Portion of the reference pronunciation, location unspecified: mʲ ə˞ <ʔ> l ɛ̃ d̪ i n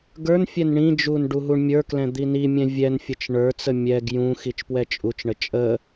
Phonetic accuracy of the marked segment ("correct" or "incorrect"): incorrect